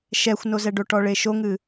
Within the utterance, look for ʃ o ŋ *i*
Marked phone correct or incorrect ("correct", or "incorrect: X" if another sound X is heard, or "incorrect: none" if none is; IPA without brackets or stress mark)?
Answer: incorrect: ɨ